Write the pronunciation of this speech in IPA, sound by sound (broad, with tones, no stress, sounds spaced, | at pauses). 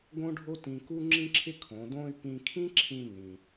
ɡ õ˥ ɖʱ o˥ t ĩ˧ k u˥ ŋ͡ǁ ĩ˥ ǁʰ ɪ˥ kʰ õ˩˧ d õ˥ y̯ p ĩ˧ kʰ ĩ˥ ǁʰ ĩ˧ n ĩ˩